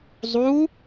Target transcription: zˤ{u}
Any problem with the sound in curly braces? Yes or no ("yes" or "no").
no